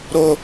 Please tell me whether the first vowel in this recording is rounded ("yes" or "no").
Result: yes